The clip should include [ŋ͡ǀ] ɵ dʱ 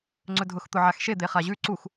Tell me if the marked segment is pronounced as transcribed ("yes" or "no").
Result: yes